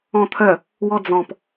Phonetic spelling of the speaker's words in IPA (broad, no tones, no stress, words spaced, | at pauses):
ɔ̃t̪ʰœ | wɔd͡zɔ̃p